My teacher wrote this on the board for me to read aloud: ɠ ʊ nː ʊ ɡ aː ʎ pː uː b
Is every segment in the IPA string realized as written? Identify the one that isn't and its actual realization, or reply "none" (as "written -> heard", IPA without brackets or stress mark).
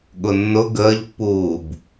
aː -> əː